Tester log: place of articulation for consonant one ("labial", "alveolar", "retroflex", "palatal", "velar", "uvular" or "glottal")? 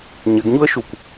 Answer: palatal